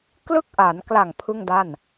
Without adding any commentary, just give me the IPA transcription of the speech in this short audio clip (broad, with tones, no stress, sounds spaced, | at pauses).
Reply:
k l ɯ˦˥ k̚ ʔ a˩˦ n k l a˨˩ ŋ pʰ ɯ˥˩ ŋ d a˥˩ n